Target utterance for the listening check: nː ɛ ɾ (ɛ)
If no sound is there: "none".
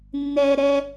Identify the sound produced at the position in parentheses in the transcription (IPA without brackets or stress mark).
ɛ